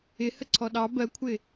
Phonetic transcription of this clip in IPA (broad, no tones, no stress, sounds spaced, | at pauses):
ɪ h ə ǀʰ ɔ ɗ ɑ b ɜ kʷʰ ɪ